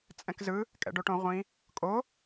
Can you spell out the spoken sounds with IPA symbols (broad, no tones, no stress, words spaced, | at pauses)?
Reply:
t͡sʼɛ̃kzɯ | kʼɛ̰ɖoʈõ ʁʷĩ | kʼo